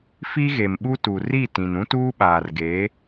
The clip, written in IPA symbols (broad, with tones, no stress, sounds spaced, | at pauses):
f i˦ ɣ e˨ m ɓ u˦ t u˨ r i˦˨ t ĩ˨ n ũ˦ t uː˦ ɓ aː˨ r ɡ eː˨˦